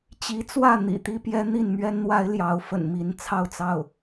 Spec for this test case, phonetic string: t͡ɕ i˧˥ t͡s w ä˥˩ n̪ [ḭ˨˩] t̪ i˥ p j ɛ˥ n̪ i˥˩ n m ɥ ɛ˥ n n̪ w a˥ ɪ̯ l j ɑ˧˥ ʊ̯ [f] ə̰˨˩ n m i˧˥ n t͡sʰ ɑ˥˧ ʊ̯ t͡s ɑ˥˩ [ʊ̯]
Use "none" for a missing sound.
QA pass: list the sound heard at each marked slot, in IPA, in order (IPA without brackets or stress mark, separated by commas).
ḭ˨˩, f, ʊ̯